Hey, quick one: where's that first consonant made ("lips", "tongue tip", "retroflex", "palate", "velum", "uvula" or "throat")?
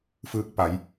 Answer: lips